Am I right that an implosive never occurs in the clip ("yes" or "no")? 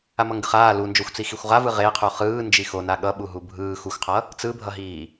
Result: no